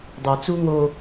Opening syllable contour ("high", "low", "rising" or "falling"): low